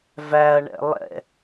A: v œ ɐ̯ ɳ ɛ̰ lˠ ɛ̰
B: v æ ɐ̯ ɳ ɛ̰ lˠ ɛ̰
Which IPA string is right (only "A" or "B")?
B